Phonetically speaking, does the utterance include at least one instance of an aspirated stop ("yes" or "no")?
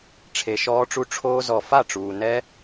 yes